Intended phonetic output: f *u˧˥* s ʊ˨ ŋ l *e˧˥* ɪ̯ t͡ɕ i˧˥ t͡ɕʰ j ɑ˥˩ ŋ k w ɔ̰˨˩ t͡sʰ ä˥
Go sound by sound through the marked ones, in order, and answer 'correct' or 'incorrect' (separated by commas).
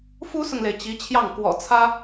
incorrect, incorrect